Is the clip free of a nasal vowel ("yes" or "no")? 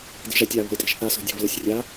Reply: yes